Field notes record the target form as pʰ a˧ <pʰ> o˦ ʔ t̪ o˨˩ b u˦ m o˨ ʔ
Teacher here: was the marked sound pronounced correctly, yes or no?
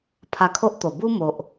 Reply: no